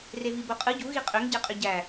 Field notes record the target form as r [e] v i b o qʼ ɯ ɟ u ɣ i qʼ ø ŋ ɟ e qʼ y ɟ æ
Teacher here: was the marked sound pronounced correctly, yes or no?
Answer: yes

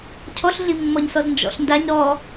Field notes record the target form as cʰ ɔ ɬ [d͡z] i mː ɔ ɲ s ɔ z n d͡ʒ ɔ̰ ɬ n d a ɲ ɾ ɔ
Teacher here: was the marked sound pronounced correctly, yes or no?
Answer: no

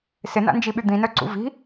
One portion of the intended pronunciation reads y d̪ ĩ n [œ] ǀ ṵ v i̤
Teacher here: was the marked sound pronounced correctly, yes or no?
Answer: yes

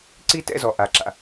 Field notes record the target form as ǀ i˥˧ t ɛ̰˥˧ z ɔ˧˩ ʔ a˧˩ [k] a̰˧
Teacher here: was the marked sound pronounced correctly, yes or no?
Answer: no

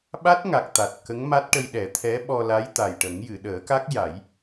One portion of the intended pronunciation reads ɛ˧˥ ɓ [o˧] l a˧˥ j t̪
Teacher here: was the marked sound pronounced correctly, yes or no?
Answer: no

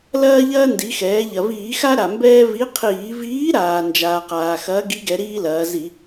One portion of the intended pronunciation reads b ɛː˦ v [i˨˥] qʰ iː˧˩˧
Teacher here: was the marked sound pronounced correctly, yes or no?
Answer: yes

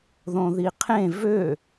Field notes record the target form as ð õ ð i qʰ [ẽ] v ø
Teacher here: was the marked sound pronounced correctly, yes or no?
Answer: yes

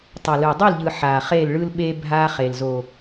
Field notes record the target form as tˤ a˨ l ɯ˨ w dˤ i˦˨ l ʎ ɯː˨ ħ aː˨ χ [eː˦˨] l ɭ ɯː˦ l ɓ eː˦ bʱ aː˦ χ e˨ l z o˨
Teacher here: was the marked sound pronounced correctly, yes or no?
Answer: yes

